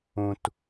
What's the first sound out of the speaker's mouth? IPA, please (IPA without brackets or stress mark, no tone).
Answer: ũ